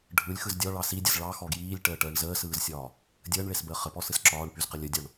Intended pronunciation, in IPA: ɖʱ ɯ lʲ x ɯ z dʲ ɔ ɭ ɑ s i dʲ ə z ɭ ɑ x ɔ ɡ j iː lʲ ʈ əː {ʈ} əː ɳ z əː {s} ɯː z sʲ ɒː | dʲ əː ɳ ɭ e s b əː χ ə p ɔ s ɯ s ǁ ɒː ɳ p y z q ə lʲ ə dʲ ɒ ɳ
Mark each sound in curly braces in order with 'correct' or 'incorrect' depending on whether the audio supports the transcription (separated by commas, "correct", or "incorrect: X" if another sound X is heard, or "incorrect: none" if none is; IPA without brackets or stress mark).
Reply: correct, correct